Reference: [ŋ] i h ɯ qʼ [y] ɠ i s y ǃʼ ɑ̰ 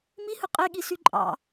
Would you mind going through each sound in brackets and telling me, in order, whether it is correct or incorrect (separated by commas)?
incorrect, incorrect